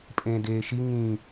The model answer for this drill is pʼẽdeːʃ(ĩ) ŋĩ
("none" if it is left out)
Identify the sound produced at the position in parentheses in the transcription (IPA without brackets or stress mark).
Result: i